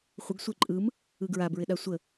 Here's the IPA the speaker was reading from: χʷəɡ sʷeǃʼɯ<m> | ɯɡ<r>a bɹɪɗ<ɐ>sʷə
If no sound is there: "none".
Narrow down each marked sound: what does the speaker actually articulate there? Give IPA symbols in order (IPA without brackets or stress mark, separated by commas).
m, ɹ, a